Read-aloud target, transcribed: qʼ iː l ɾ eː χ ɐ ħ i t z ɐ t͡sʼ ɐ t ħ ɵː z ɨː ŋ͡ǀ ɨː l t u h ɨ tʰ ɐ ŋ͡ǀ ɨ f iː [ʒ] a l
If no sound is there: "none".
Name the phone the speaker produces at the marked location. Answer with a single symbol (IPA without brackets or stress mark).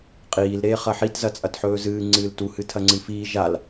ʒ